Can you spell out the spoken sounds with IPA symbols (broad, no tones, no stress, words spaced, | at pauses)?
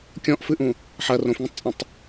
kʲɔ̃ʔfɨʔũ | ħɐ rõfŋə̃tˤt͡sʼũtˤ